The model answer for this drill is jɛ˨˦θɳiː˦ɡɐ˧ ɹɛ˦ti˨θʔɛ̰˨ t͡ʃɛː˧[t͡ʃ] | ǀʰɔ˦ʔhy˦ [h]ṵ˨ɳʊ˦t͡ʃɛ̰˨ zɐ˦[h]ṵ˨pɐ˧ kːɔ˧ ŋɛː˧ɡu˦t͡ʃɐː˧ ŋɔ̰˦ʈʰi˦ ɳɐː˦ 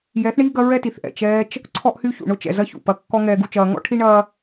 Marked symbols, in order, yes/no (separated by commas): yes, no, no